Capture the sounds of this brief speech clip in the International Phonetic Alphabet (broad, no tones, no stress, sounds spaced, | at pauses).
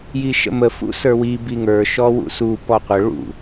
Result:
j i ʃ ə̰ m ə f ṵ s ə˞ w i b i ŋ ə˞ ʃ ɔ w ṵ s u p ɔ qʷ ə ɭ ṵ